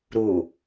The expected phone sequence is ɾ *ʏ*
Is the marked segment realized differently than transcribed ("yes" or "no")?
yes